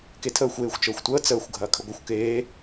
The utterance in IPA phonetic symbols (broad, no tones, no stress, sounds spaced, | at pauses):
k e tʰ əː xʷ eː xʷ t͡ʃ əː xʷ tʷ əː t͡s əː xʷ ɡʱ ɐː kʰ ə ɡʷ ɐ xʷ k eː